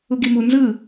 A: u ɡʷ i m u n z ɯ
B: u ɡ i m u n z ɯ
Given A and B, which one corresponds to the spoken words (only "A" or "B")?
B